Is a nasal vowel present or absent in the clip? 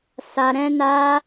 present